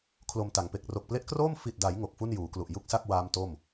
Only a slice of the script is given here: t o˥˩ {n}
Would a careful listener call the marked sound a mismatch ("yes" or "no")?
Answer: yes